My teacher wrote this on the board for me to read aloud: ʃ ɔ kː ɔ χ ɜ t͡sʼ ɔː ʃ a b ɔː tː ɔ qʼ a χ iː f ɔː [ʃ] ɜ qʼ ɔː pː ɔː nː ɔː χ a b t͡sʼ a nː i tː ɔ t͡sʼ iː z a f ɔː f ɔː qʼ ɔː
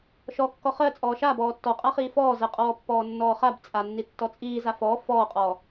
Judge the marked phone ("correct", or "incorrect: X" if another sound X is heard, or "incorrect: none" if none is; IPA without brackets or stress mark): incorrect: z